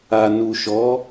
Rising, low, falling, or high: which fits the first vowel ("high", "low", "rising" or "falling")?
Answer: low